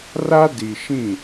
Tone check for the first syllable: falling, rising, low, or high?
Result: high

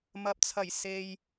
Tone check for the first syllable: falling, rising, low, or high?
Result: rising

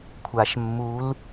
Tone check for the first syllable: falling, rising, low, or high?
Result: low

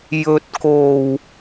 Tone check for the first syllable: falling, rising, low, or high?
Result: low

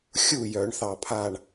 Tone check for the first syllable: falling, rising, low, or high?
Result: falling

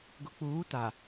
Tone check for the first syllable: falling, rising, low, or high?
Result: low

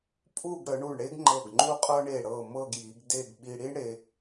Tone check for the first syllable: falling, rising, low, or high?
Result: falling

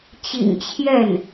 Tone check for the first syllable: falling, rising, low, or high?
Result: low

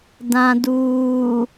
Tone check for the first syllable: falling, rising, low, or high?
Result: low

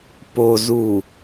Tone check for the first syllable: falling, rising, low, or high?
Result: low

